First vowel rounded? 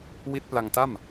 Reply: no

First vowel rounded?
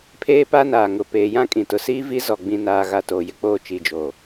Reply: no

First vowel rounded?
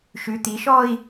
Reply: yes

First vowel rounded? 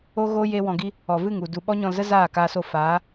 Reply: yes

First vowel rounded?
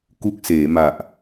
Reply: yes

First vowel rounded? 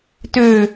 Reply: yes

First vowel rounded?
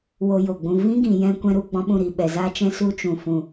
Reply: yes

